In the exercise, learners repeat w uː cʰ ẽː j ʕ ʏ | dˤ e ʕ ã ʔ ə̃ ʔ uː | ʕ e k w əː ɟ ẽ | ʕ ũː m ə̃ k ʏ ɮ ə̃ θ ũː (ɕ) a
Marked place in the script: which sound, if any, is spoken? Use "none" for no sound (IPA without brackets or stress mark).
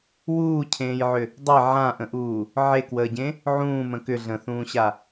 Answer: ɕ